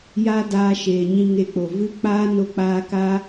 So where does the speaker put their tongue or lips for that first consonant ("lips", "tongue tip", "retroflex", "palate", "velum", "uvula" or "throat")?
palate